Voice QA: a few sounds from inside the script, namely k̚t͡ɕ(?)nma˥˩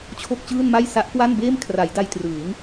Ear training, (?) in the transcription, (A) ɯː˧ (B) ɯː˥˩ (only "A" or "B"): B